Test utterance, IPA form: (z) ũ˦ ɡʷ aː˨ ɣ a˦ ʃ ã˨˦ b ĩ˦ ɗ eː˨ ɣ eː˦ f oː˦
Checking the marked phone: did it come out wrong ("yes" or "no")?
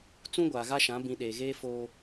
yes